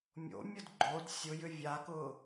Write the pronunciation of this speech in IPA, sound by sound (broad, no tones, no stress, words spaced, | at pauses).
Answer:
mʲo̰mʲʊd ɡ͡ǃod sʲʊjʏ vʲakʊː